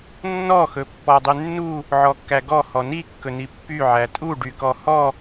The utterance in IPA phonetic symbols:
nː ɔ x ɵ pː ɔ dˤ y nː u | ʕ ɔ kː æ ɡ ɔ h ɔ n i kː ɵ n i pː y ʕ æ tʼ u ɖ y k ɔ h ɔ

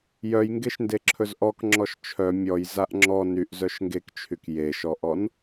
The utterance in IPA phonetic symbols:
j œ j ŋ ɡ e ʃ n d e ǁʰ ɵ z ʔ ɔ k ŋ͡ǁ ɔ ʃ t͡ʃʰ œ mʲ ɔ j z a ʔ ŋ͡ǁ ɔ n y ʔ z œ ʃ ŋ ɡ e k t͡ʃʰ y k j e ʃ ɔ ʔ ɔ n

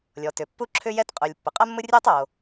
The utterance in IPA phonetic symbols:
lʲ ɔ˩ t ʏ˩ pː u˥ ǁʰ ʏ˥ j ɛ˥ t qʼ u˩ lʲ pː ʏ˩ qʼ ɜ˥ mː ʊ˥ rʲ eː˥ tˤ o˩

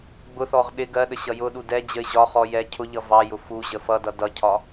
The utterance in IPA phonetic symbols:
ɡ͡b ʊ θ ɔ ʁ ɗ ɪ ɡ ɜ ɗ ə ɕ ʌ j ʊ ɗ u d ɛ d͡ʑ ə ɪ̯ ʑ ɒ χ ɔ j ɛ cʰ ʊ ʎ ʌ v ɑ j ʊ f u ʑ ə f ʌ d ʌ d ʌ cʰ ɒ

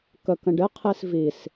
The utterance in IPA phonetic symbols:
k ə k ə̃ ɖ ɪ qʰ i s v i s

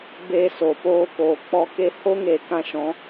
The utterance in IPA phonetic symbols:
b eː˧ s o˨ p oː˧ k oː˨ k͡p ɔ˧ k e˦ h o˦ ŋ eː˨ k ã˧ ʃ ɔ̃˨˦

